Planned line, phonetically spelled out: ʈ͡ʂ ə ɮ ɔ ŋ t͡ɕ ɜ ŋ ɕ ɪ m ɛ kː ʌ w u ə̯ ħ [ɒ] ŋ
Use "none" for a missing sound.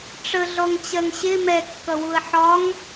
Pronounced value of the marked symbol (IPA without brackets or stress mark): ɒ